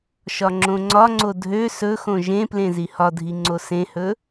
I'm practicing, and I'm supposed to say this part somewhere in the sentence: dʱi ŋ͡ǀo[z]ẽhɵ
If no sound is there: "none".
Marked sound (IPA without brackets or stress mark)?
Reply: s